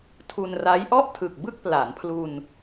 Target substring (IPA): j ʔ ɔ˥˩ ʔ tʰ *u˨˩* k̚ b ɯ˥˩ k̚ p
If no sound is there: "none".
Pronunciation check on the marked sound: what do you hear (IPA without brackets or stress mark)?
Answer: ɯ˨˩